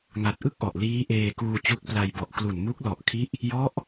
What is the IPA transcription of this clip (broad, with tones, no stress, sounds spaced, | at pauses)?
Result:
ŋ a˨˩ t̚ ʔ ɯ˥˩ k̚ ʔ ɔ˨˩ ʔ l iː˦˥ ʔ eː˧ k uː˧ t͡ɕ u˦˥ k̚ p l a˧ j b ɔ˨˩ ʔ k l u˨˩ n m u˦˥ k̚ l ɔ˨˩ ʔ kʰ i˦˥ ʔ | j ɔ˦˥ ʔ